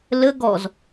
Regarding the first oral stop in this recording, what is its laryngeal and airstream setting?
plain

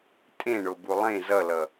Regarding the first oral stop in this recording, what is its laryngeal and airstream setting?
ejective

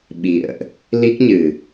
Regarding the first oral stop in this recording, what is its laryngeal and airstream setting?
implosive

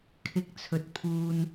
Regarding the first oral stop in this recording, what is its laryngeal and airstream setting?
aspirated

